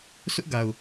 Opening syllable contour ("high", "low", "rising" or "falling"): high